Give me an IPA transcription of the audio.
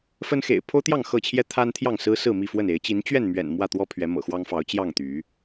f ə˦ n x ḛ˨˩ ɪ̯ pʰ o˦ ʊ̯ t̪ j ɑ˥˨ ŋ x ɤ˥˨ t͡ɕʰ j ɛ˦ t̪ʰ a˦ n t̪ʰ j ɑ˥˨ ŋ s ɹ̩˦ s ɹ̩˥˨ m i˥˨ f w ə˥˨ n e˨˦ ɪ̯ t͡ɕ i˨˦ n t͡ɕ ɥ ɛ˥˨ n m ɥ ɛ̰˨˩ n m w ä˥˨ t̪ w ɔ˦ pʰ ɥ ɛ˨˦ m ɤ̰˨˩ x w ɑ˦ ŋ f ɑ˨˦ ʊ̯ t͡ɕ j ɑ˥˨ ŋ t̪ y˨˦

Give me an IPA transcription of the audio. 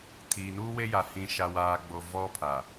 tʰ iː˨ n uː˦ w e˦ j a˨ h ĩ˨ ʃ a˨ w aː˨ ɡ͡b o˨ v ɔ˦ pʰ a˨

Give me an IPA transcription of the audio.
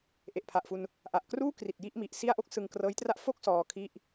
ʔ e˨˩ ʔ pʰ a˨˩ ʔ f u˧ n | ʔ a˨˩ ʔ k r uː˥˩ k r i˨˩ t̚ j i˥˩ ʔ m i˨˩ ʔ s i˥˩ a̯ ʔ o˥˩ k̚ s ɯ˧ ŋ k r ɤː˦˥ j t r a˥˩ ʔ f o˥˩ k̚ s ɔː˧ kʰ i˥˩ ʔ

